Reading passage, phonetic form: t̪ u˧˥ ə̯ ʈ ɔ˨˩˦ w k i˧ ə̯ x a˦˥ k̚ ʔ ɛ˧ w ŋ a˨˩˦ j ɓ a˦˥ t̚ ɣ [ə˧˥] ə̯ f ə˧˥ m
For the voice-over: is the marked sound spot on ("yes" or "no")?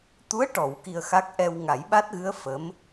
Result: no